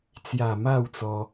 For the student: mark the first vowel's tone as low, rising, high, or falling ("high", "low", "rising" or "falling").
low